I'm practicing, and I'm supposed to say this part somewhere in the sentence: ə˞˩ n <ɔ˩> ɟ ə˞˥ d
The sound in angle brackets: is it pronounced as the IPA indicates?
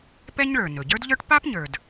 no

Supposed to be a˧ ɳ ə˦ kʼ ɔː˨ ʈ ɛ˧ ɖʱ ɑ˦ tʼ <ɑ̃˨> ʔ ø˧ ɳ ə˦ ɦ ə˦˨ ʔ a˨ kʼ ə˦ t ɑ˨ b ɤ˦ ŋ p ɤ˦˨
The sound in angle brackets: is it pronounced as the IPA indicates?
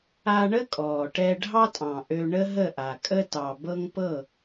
yes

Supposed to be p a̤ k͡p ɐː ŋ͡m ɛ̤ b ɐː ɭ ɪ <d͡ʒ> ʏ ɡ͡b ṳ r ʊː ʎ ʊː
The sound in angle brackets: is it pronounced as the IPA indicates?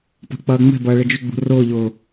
yes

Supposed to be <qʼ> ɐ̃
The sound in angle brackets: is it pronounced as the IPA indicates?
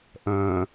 no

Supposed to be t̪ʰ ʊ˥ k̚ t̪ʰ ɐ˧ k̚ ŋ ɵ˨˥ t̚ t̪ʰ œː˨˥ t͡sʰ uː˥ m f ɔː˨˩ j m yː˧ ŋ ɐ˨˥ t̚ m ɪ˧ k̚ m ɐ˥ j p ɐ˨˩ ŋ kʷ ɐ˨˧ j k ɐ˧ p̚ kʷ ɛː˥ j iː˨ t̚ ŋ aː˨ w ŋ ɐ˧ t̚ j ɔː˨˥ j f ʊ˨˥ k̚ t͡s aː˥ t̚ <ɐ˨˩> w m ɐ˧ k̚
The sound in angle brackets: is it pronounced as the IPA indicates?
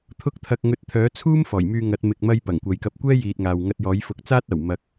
yes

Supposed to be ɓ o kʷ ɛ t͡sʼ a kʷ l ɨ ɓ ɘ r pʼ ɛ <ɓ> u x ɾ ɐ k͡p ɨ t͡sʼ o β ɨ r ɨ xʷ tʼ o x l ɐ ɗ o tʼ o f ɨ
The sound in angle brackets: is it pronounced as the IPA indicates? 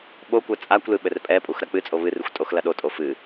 no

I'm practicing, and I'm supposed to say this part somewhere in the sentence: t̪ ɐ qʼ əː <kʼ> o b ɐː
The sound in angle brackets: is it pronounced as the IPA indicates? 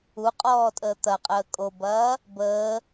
yes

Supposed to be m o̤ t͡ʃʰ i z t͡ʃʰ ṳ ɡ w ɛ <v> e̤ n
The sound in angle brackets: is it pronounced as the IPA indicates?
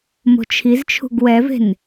yes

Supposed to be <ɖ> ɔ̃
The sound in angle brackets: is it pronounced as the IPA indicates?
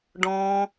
yes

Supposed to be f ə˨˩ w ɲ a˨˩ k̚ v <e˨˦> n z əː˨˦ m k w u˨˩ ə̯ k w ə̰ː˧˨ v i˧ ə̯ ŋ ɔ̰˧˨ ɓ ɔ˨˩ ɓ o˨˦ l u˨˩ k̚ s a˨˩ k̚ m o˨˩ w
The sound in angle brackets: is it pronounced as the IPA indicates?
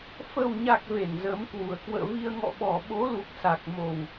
no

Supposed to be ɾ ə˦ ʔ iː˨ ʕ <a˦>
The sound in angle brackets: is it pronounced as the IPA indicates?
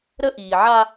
yes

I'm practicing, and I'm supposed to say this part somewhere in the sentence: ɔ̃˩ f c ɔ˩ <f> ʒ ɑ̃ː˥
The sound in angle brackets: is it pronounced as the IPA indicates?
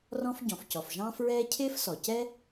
yes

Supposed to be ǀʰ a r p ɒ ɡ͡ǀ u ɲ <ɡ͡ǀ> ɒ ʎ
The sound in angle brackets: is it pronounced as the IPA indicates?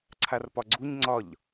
no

